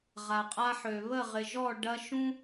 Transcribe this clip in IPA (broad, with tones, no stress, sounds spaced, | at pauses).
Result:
ʁ a˨ qʼ a˦ ħ ø˨ β ə˦˨ ʁ ɪ˨ ʒ ɔ˦˨ ɖ ɐ˦ ʃ ũ˦